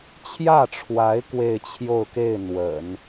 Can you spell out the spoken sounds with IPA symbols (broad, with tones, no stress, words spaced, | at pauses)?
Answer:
t͡ɕʰjä˥˩ʈ͡ʂʰwa˧˥ɪ̯ kwe˥˧ɪ̯t͡ɕʰjo˥˧ʊ̯ke˥˩ɪ̯ n̪wə̰˨˩˦n